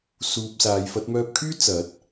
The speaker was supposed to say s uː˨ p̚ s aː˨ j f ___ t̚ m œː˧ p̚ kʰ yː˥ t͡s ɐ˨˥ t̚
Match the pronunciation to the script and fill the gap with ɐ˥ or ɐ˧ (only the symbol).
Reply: ɐ˧